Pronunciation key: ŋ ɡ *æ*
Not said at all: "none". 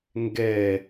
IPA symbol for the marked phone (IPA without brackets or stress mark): ɛ